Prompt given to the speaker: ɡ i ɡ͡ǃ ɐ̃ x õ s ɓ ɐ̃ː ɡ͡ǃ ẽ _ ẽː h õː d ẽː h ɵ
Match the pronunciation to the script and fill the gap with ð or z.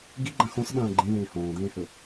ð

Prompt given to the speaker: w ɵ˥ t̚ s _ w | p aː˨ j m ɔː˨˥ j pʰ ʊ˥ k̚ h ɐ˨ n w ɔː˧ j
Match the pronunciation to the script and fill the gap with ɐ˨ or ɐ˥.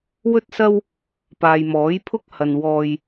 ɐ˥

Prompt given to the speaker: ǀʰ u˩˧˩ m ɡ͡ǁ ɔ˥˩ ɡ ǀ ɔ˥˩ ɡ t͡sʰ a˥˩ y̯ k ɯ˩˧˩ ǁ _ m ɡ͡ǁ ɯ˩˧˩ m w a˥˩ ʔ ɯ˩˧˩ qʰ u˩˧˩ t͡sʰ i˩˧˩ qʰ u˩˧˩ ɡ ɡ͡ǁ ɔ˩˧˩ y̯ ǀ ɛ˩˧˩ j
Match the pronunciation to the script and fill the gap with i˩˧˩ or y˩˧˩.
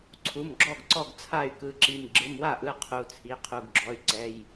i˩˧˩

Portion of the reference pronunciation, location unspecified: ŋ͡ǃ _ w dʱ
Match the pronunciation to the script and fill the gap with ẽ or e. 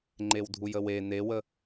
e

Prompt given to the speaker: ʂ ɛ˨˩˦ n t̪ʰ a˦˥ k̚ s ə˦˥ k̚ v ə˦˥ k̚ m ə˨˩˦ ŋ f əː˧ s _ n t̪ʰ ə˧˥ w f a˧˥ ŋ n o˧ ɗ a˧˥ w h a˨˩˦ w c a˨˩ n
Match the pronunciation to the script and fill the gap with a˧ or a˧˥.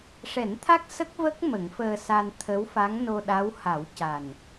a˧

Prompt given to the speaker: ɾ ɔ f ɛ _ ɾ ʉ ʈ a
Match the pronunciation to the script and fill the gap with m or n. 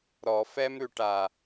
m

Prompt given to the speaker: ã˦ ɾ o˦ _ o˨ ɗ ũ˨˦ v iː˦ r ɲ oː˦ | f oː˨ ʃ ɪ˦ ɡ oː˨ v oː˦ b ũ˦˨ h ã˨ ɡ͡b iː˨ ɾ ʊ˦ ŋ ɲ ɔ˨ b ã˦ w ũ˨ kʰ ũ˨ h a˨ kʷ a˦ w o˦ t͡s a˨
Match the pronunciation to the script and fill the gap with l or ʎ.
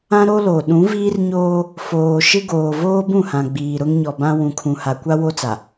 l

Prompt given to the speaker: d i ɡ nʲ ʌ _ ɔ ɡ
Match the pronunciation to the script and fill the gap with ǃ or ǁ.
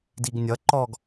ǃ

